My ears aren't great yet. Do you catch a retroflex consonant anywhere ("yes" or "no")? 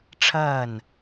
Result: yes